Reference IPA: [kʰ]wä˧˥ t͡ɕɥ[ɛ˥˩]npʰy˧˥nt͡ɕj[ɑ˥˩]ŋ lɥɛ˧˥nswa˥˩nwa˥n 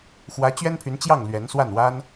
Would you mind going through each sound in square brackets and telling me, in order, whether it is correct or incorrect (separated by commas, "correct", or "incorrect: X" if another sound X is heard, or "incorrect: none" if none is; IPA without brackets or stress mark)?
incorrect: x, incorrect: ɛ˥, correct